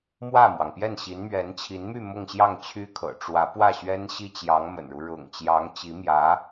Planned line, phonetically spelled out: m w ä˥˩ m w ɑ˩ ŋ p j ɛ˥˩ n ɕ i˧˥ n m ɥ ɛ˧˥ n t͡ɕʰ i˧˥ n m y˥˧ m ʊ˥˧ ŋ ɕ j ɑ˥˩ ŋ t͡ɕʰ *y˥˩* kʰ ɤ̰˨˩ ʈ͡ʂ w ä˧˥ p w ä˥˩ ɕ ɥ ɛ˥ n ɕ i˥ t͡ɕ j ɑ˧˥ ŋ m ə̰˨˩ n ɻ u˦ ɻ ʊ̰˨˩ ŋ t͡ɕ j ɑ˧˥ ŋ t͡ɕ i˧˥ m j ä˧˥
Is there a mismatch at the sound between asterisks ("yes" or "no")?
yes